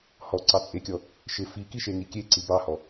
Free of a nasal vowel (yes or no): yes